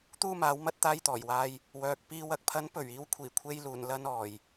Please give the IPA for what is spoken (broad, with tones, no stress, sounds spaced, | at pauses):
t̪ uː˥ m aː˨˥ w m ɐ˥ t̚ t̪ aː˧ j t̪ ɔː˨˩ j w aː˧ j | w œː˨ k̚ p iː˨ w ɐ˨ k̚ pʰ ɐ˨˥ n p ɵ˨˩ ɥ iː˧ w kʷʰ iː˨˩ kʷʰ e˧ j l uː˨˩ n l ɐ˧ n ɔː˨˩ j